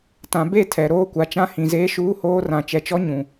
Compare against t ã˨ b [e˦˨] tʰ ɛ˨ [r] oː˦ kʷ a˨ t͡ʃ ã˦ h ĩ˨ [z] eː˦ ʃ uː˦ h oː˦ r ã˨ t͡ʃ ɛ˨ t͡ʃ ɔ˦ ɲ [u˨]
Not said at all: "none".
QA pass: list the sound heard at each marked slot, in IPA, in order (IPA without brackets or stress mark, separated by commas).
e˦˨, ɾ, z, ũ˨